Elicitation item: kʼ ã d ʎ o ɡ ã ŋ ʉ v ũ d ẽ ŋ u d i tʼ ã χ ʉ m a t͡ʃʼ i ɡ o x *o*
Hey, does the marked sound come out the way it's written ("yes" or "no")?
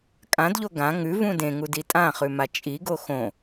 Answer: no